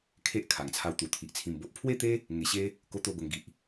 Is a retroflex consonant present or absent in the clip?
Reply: absent